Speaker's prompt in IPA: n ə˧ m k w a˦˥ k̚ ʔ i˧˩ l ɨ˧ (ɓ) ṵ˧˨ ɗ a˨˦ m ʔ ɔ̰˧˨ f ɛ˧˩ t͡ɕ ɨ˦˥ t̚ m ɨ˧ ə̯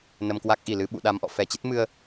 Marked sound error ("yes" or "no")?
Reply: no